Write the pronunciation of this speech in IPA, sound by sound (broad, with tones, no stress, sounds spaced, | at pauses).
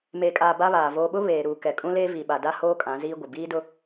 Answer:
m eː˨ kʼ aː˨ b a˦ β aː˨ v oː˨ ɓ ʊ˦ β eː˨ ɾ uː˨ k ɛ˨ kʼ ũ˦ l eː˦ v i˨ ɓ a˨ d a˦ h oː˦ kʼ ã˨˦ z iː˦ ɡʷ ɪ˨ b iː˦ d ʊ˦